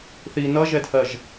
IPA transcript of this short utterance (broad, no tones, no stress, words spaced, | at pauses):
θi nʌʒɛdhɜʒ